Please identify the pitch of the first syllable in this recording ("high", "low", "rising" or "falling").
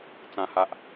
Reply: low